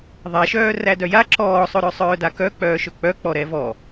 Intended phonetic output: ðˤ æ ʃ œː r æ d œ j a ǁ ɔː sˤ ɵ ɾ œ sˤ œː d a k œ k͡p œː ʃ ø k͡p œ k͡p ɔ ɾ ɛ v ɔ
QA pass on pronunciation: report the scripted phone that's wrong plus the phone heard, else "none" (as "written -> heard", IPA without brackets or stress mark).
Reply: ø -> ɵ